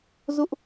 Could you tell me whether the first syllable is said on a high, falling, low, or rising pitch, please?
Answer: high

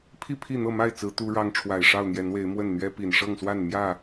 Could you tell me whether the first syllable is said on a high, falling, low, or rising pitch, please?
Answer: falling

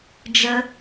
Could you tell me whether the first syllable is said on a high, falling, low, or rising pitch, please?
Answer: high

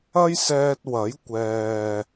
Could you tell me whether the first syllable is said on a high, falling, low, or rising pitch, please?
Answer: high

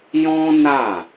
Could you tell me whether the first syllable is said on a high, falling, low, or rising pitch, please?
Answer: high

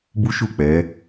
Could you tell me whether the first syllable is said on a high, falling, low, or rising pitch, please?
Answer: high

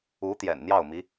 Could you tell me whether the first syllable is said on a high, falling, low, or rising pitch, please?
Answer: rising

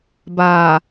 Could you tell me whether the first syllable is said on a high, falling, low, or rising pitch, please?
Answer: low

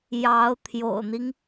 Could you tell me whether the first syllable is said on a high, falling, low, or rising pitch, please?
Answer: rising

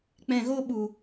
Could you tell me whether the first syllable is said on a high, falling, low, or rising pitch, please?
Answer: low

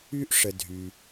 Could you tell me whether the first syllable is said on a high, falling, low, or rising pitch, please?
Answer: high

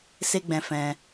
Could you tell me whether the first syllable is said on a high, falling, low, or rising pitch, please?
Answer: high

